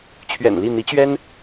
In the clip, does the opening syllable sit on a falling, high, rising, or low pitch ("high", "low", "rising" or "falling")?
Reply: low